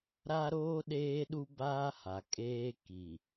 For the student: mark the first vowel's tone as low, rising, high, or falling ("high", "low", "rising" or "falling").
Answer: high